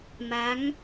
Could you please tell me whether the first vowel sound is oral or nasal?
oral